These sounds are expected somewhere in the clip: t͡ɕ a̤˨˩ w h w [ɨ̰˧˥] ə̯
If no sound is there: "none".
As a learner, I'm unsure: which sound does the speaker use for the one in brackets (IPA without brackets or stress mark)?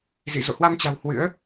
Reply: ɨ̰˧˥